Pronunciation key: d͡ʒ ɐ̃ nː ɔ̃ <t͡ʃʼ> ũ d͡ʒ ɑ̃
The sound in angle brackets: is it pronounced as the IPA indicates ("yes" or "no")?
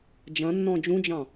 no